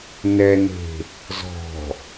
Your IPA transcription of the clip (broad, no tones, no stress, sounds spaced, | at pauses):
n ɛ n e̤ | z ɔ̤